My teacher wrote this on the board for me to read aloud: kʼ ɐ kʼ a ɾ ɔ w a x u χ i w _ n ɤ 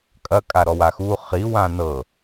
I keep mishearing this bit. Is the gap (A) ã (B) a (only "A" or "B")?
A